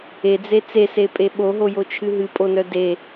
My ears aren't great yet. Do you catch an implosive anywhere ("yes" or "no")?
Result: yes